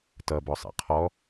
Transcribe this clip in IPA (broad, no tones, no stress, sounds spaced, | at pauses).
t ʌ b ɔ sˤ ḭ qʰ ɔ